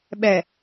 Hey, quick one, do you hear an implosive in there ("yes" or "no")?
yes